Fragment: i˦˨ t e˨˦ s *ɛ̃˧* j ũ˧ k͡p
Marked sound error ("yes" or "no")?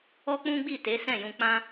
yes